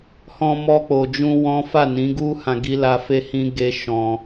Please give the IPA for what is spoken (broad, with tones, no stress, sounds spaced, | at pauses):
h ɔ̃˧ m ɔ˧ k͡p o˨ d͡ʒ ũ˧ w ɔ̃˦ f a˦˨ n ĩ˨˦ ɡ u˦ h ã˧ ɡ i˦ l a˦ f e˦ h ĩ˦ ɡ e˦ ʃ ɔ̃˧